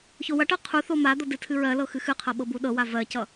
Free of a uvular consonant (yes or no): no